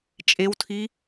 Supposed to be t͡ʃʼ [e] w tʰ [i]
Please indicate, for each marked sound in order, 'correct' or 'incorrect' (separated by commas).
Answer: correct, correct